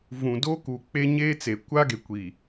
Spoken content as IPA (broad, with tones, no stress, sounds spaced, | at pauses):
v ũ˨ d oː˦ k uː˨ k͡p e˦ ɲ eː˦ t͡s e˨ kʷ aː˦ ɡ e˨ kʷ i˨